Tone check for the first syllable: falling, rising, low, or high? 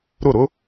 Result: falling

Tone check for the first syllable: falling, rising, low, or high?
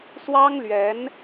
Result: high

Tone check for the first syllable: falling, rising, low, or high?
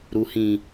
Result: low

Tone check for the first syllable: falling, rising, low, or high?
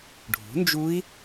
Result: rising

